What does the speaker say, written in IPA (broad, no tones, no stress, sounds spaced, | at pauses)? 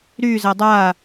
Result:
ɾ y z ɐ dˤ a